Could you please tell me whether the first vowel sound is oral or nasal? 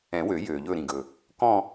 nasal